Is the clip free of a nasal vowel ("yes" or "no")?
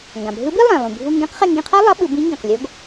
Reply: no